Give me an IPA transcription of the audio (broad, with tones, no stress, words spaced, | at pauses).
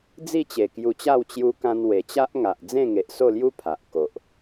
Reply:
d͡zi˥˧t͡ɕe˨˩kju˧t͡ɕa˥˧w t͡ɕju˧kã˧n we˨˩t͡ɕa˦ʔŋa˨ʔ d͡zẽ˥˧ŋe˨ʔso˥˧lju˦ pʰa˨ʔ ko˨ʔ